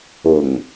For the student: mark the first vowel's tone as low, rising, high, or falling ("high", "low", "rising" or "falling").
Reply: low